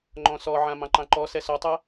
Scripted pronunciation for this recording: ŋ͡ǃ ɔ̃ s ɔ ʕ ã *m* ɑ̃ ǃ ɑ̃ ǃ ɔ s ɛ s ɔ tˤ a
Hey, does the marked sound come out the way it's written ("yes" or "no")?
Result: yes